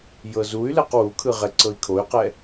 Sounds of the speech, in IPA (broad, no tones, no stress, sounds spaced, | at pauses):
j ɤ z u y̯ l ɛ q w u kʰ ɯ ʁ ɛ ǀ ɤ i̯ kʰ o y̯ q ɛ